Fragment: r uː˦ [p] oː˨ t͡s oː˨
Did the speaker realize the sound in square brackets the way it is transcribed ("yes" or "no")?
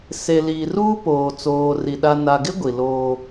yes